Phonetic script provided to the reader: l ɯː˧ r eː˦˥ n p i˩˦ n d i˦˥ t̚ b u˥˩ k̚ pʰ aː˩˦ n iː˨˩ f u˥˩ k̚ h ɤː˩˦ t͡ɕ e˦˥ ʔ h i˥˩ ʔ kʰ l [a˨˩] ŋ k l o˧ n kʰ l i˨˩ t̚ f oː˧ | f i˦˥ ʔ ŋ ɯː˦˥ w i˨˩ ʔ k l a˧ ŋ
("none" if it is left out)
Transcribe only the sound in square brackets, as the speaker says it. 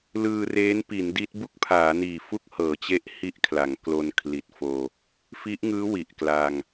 a˩˦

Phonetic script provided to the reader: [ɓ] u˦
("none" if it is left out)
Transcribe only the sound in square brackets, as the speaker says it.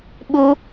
ɓ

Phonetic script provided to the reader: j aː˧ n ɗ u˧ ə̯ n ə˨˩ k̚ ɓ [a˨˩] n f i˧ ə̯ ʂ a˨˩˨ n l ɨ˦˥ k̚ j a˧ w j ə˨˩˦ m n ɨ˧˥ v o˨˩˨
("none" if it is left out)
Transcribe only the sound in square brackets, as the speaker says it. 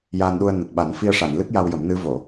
a˨˩˦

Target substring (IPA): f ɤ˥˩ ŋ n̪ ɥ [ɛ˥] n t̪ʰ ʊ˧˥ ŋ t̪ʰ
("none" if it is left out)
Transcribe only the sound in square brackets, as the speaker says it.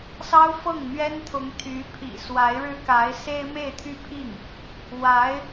ɛ˥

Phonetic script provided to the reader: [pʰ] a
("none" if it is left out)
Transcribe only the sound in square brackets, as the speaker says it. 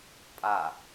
pʼ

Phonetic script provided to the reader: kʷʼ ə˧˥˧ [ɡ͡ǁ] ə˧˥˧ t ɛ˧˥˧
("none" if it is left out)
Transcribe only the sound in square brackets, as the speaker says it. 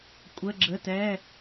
ɡ͡ǁ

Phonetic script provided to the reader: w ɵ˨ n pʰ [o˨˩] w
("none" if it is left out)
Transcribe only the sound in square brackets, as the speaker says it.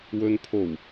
o˨˩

